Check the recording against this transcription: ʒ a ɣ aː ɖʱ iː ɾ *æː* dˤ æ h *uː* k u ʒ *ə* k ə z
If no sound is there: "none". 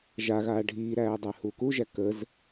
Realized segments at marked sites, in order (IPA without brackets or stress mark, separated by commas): æː, uː, æ